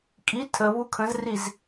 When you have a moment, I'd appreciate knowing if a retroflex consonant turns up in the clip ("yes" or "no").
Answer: no